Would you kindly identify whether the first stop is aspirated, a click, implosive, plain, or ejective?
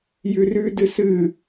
plain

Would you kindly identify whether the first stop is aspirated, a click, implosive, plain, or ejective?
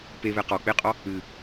plain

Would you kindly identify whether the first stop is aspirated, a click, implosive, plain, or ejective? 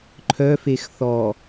click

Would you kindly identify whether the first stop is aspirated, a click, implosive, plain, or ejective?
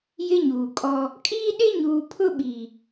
ejective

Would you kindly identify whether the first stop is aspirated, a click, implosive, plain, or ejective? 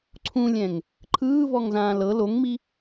click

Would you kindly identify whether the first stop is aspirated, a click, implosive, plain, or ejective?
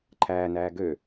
click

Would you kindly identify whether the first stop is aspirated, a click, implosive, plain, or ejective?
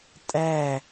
ejective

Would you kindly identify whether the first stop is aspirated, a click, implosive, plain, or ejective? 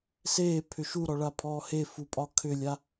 aspirated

